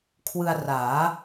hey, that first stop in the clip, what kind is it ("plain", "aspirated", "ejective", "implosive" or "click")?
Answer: aspirated